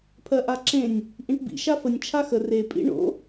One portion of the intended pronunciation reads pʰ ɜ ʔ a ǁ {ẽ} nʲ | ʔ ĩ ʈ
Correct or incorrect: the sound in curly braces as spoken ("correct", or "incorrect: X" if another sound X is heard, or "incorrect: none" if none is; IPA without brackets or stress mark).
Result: correct